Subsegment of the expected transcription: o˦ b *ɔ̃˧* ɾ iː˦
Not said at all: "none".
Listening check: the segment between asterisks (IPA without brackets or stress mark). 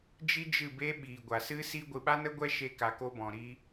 ɔ̃˧